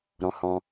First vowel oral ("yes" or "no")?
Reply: no